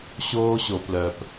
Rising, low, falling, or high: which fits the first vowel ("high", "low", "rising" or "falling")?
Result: high